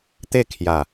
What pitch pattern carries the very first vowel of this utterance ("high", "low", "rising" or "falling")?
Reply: falling